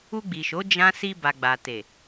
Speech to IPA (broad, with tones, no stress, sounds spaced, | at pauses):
u˧ ɡ͡b i˨ ʃ o˨˦ d͡ʒ ã˦ s i˧ b a˨ ɡ͡b a˨ t e˨